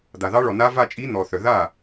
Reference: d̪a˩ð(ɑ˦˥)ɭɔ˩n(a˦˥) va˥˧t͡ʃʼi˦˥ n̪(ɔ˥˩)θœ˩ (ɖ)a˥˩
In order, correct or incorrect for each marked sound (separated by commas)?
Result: correct, correct, incorrect, incorrect